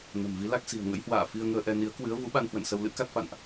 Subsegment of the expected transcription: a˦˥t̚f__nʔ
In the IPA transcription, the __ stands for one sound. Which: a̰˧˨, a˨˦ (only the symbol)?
a̰˧˨